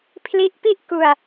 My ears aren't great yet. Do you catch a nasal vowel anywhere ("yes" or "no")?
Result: no